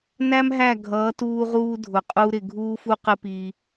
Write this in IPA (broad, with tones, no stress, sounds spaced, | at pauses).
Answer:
n æ˦ m ɦ æ˦˨ ɡʱ ʌː˨˦ t uː˧ ʁ uː˧ dʱ ʊ˨ qʼ u˧ ɾ ɪ˨ ɡʱ uː˦ f u˦ q ɪ˦ p iː˧